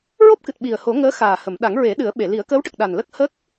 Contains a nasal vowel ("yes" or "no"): no